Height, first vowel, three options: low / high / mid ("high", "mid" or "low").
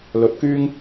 mid